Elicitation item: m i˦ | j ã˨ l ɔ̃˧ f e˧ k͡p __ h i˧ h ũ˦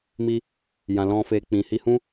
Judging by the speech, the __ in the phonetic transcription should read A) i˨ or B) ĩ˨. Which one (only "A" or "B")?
B